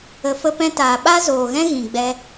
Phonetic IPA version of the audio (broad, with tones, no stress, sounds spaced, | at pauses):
ə˧ f ə˦ p ɛ̃˦ t aː˨ ɓ a˦ z oː˨ ɣ ɛ̃˦ ɣ ĩ˨ ɡ͡b ɛ˧